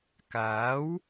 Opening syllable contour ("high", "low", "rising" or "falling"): rising